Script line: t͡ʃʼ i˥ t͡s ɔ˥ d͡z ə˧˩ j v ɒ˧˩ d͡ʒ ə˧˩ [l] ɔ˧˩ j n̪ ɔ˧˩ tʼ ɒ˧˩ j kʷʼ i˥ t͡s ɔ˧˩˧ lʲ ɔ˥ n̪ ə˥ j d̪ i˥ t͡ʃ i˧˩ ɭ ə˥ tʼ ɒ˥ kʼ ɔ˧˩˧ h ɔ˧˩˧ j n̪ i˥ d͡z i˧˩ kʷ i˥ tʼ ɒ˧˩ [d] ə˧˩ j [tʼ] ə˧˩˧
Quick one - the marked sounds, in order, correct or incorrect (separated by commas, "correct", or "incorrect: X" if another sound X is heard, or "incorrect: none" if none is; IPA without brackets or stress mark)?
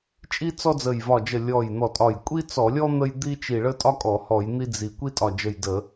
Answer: incorrect: lʲ, incorrect: d͡ʒ, incorrect: d